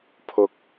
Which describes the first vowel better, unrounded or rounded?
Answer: rounded